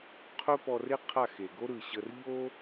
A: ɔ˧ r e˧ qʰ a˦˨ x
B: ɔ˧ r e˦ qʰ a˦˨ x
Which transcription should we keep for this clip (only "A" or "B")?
B